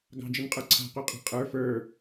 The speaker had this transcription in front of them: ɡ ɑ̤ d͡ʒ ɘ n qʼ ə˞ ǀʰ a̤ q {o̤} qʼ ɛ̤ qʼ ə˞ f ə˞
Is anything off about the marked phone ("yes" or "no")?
yes